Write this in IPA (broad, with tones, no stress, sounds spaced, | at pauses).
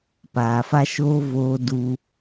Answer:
p aː˨ f a˦ ʃ oː˦ v oː˧ d u˧